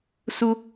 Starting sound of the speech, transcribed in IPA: s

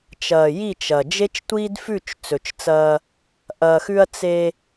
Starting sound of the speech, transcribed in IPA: t͡ʃ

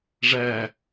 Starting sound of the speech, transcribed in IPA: ʐ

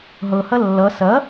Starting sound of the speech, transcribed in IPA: ɦ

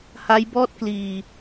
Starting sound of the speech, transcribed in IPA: h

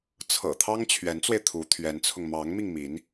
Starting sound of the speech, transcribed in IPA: t͡sʰ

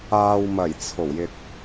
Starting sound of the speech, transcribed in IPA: aː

